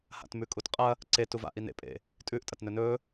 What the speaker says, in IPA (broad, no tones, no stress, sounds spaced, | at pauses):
h a̰ t m ʉ kʼ u t qʼ ɐ | ǀ e t u v a̰ ʔ i n ḛ pʼ ḛ | tʼ ʉ ʔ tʼ ɐ t n ɵ n ɵ